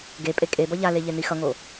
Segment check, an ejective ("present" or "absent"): present